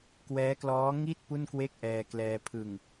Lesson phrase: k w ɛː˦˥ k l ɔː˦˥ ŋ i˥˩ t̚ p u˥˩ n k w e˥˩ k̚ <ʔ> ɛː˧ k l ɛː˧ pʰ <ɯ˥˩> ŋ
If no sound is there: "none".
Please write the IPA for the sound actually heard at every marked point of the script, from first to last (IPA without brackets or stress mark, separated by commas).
ʔ, ɯ˨˩